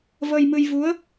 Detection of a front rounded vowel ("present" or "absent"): absent